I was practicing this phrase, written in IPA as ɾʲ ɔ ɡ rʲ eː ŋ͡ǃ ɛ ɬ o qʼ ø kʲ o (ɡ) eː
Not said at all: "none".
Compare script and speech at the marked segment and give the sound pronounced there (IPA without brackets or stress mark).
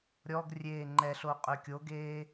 ɡ